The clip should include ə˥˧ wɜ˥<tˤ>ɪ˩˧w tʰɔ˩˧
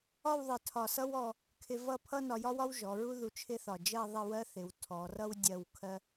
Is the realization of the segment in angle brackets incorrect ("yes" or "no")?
yes